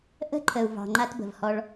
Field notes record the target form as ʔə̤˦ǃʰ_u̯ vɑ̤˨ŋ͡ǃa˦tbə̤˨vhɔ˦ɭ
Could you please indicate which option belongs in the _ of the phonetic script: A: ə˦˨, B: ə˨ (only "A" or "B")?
B